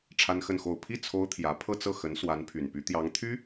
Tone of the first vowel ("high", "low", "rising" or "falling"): high